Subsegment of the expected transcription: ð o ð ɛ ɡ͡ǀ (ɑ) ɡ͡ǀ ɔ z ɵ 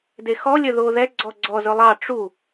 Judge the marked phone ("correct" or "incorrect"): incorrect